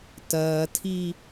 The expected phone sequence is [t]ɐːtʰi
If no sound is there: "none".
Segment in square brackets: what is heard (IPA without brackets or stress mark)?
t